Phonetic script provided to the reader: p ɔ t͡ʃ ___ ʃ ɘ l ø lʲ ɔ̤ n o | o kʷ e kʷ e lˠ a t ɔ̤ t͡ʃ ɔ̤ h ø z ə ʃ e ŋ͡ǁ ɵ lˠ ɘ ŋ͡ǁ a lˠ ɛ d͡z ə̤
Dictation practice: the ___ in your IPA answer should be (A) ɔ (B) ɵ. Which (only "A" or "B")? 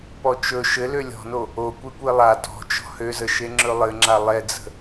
B